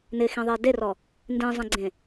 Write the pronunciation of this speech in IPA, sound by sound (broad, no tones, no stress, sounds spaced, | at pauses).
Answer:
n ɪ x ĩ ðˤ i e̯ d e r ɔ | n d ĩ zˤ ẽ ɡ͡ǀ ẽ